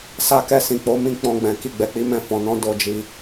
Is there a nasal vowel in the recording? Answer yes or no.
yes